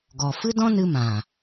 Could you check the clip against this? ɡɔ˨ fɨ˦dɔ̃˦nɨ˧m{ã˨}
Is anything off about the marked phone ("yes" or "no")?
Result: no